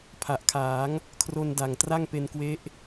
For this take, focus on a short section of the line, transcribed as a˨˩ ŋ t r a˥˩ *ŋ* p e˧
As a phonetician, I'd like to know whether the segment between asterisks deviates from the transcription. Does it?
no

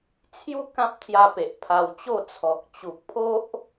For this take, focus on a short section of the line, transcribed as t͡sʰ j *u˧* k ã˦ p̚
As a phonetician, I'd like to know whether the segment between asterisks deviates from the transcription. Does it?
yes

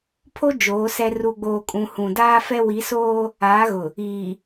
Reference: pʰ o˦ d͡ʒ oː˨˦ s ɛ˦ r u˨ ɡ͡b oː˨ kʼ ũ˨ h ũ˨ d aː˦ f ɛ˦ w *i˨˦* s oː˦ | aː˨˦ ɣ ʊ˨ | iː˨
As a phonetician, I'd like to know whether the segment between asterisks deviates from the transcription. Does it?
no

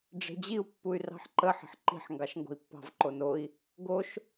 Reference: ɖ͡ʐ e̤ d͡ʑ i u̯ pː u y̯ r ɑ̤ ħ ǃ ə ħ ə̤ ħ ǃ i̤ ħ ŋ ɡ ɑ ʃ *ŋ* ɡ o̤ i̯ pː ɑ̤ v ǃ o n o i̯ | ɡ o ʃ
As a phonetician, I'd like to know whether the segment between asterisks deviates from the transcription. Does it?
no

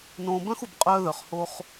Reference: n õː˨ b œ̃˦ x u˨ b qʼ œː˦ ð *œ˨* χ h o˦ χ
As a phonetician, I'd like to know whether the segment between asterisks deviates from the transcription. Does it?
no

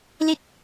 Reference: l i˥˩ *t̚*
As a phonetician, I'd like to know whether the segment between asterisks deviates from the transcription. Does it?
no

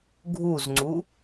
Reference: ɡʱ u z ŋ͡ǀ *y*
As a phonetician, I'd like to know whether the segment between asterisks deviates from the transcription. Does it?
yes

